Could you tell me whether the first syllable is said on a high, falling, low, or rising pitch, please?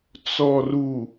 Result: low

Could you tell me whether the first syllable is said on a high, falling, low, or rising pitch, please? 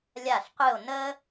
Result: falling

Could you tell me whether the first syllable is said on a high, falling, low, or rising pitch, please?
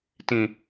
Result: low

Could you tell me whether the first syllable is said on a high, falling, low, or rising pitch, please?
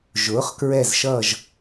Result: rising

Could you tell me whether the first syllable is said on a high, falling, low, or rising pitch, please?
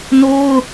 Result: high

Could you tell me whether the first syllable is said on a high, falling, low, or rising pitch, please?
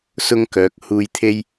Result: high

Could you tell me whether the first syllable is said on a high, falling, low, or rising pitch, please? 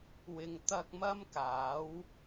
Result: low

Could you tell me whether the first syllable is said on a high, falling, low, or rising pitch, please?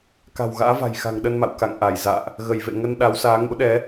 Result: low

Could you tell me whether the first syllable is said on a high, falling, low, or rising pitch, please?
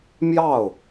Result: falling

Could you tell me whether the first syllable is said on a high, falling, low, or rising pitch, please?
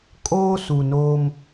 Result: high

